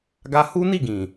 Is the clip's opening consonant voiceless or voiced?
voiced